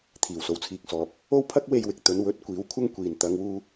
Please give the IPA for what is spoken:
t̪ʰ iː˨˩ w s o˨ w t͡sʰ iː˨ k̚ s ɔː˨ p̚ | o˥ w pʰ ɐ˥ k̚ w e˨ j w ɪ˨ k̚ t̪ ɵ˨˧ n w ɵ˨˥ t̚ kʷ iː˨˥ w kʷʰ ɐ˥ ŋ kʷ iː˨ n t̪ ɐ˨˧ ŋ w uː˧

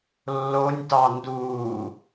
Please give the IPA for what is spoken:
lː o nʲ t ɑ n d uː

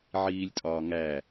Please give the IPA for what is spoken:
ʕ iː lʲ tʼ ɒː ŋ æ

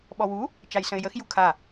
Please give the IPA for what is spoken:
ɓ ɔ w u | t͡ʃ a j s ə̃ ɪ̯ j ə x j u kʰ a

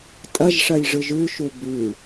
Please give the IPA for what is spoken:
tʼ ɐ ʒ ʂ ɐ j ʐ ɯ ʒ ʉ ʃ u b ʉ

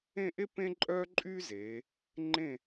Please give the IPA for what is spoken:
ẽ˥˧ ʔ e˥ p ẽ˥ ǃʼ œː˥ ǃʼ yː˥ z eː˩˧ | ŋ͡ǃ ẽ˧˩

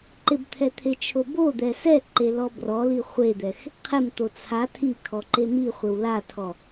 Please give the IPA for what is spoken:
ǃ ɪ b t̪ʰ ɛ t̪ʰ e t͡ʃʰ o b o d̪ ɛ s ɛ ǃ e l ɔ b r ɔ l i χʷ e d̪ ɛ x | qʰ ɪ m t̪ o t͡sʰ a tʰ i kʰ ɔ ǃ e m i χʷ ɪ w l a tʰ ɔ

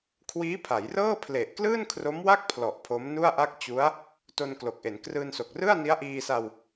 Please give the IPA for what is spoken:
kʰ w iː˦˥ pʰ a˩˦ j r ɤː˥˩ pʰ l e˨˩ ʔ k l ɯː˥˩ n kʰ r o˦˥ m w a˥˩ k̚ pʰ l ɔ˨˩ ʔ pʰ o˦˥ m n u˥˩ a̯ ʔ a˥˩ k̚ t͡ɕ u˦˥ a̯ | t o˧ n k l o˨˩ k̚ ʔ e˩˦ n k r ɯː˧ n s o˨˩ k̚ r ɯ˥˩ a̯ n i˦˥ a̯ ʔ iː˧ s a˧ w

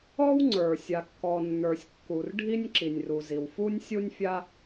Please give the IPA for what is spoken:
ɔ˥ w ŋ͡ǀ ə˞˩ sʲ a˩ kː ɔ˩ nː ə˞˩ sʲ kː u˩ r ɖʱ i˥ nʲ ǁ i˩ nʲ r u˩ z i˩ w f u˥ nʲ sʲ u˥ nʲ fʲ a˥

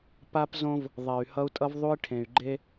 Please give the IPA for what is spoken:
p a˦ p z õ˦ v | ðˤ ɛ˨ y̯ h ʌ˦ u̯ tʼ ʌ˦ v ðˤ u˦ i̯ ʈʰ ẽ˨ y̯ ɡ͡ǃ e˦

